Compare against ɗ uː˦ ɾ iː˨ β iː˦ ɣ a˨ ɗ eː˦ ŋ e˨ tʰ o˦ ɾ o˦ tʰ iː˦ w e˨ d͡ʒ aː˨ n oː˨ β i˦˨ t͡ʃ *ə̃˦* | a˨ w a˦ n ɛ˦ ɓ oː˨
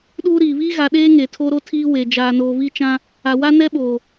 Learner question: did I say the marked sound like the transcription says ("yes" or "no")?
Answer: no